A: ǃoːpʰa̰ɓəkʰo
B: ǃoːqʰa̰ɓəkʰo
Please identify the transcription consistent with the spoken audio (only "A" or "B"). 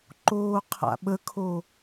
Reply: B